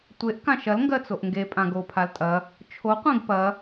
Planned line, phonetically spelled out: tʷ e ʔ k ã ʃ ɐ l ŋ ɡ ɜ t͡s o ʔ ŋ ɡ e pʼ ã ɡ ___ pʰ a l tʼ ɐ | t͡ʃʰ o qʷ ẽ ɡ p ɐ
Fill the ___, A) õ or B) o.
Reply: B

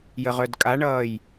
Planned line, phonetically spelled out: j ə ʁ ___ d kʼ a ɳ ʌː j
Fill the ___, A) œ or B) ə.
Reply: A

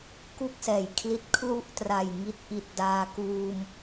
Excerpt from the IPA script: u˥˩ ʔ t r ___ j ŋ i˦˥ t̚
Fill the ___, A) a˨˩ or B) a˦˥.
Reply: A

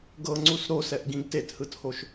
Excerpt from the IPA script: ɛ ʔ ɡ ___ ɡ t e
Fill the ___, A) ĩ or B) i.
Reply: A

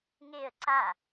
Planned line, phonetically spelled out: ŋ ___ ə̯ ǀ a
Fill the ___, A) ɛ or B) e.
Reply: B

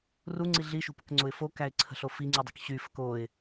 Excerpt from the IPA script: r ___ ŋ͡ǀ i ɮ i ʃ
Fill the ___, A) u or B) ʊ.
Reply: A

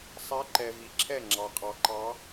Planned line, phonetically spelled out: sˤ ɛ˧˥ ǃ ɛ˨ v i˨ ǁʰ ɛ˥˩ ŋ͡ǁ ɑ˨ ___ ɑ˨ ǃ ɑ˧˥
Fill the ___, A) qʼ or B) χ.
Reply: A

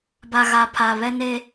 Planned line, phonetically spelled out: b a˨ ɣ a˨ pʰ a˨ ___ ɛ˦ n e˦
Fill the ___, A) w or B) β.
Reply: B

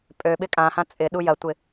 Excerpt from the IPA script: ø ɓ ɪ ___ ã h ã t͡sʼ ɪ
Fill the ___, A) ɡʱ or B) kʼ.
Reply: B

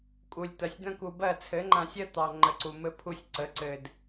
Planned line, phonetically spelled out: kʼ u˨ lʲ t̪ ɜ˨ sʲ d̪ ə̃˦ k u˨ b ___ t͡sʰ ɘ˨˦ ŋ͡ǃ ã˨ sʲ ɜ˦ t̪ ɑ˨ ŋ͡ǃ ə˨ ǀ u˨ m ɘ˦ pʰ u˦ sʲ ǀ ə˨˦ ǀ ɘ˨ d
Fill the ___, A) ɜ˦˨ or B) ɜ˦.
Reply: A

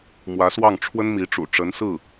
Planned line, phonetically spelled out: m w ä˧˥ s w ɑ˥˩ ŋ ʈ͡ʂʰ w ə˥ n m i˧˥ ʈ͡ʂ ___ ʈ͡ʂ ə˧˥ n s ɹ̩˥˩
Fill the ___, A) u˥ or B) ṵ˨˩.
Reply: B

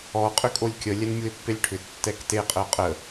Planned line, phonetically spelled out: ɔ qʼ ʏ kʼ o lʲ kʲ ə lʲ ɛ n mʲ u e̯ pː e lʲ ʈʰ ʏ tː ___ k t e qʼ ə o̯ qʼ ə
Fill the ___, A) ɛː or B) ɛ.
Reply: B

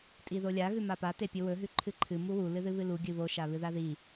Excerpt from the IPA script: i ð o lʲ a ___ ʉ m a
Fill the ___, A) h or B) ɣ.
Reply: B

